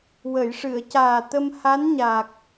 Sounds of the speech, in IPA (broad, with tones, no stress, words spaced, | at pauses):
wə˨˩˨jʂɨ˨˩˨ə̯ caː˨˩t̪ə˧mha˧˥n ɲaː˨˩k̚